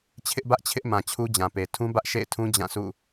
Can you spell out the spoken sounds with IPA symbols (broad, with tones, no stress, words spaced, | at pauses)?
t͡ɕʰɪ˦ʔbä˦ʔt͡ɕʰɪ˦ʔmã˨ t͡ɕʰu˦d͡ʑã˨pe˨ tʰũ˦bä˦ʔʃḛ˦˨ɪ̯tʰũ˦ d͡ʑã˦˨sʰṵ˦˨